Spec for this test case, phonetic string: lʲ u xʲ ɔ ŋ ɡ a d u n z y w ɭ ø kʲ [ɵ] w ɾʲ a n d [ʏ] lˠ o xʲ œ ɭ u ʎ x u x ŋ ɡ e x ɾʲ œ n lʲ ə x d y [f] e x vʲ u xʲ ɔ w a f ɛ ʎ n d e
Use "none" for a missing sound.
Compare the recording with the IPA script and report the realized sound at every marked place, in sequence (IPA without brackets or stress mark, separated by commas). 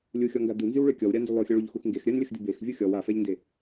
ɔ, y, b